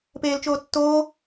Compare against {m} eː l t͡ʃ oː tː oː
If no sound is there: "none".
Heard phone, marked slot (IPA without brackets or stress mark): p